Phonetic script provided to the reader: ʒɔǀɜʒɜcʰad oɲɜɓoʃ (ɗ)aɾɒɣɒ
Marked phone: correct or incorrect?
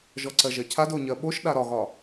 correct